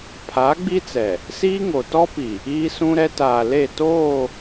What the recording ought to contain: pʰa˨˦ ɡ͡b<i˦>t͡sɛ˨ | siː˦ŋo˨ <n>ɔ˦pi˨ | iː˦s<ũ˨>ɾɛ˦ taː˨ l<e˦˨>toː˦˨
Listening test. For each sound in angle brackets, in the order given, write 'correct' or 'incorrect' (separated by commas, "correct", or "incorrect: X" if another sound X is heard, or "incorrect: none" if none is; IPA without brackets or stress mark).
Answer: correct, incorrect: t, incorrect: ũ˦, correct